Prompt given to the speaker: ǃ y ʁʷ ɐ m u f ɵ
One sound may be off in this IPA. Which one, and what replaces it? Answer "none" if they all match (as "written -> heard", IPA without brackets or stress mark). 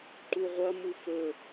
y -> u